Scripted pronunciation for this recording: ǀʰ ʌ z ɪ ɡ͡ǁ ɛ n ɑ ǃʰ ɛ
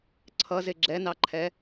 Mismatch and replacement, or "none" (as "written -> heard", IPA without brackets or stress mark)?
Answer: none